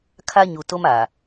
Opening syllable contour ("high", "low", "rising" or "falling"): high